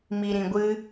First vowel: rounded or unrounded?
unrounded